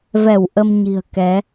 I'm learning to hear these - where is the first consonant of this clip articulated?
lips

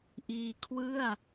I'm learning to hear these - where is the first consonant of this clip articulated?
throat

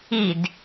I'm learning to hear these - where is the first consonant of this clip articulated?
tongue tip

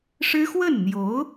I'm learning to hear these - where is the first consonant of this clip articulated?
retroflex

